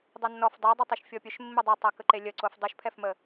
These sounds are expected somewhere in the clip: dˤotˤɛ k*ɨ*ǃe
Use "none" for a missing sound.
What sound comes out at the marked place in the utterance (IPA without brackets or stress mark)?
ə